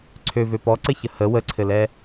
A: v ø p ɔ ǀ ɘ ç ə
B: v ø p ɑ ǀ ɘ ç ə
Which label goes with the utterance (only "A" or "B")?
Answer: A